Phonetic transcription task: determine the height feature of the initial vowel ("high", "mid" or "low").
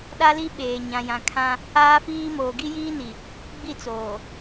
low